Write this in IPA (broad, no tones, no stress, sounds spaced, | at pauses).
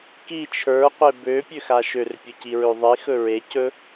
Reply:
k i t͡ʃʰ ə˞ qʷ e b ø pʲ ø x a ʃ ø r pʲ ɵ c i ɹ ø ðˤ i x ɵ ɹ e c ɵ